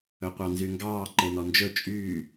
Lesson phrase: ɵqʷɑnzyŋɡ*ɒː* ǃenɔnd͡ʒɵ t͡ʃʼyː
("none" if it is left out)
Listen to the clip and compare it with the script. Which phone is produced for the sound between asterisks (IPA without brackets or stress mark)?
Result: ɑː